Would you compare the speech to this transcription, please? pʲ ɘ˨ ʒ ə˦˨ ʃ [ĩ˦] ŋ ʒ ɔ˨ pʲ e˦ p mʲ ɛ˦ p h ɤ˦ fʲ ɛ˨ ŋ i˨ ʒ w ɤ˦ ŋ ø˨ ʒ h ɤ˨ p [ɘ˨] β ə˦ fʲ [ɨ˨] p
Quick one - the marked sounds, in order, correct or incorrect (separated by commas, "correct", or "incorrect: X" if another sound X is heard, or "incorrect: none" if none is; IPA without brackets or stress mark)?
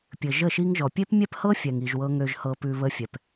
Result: incorrect: i˦, incorrect: ʉ˨, incorrect: ɛ˨